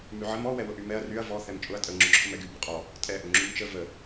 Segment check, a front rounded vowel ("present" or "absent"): present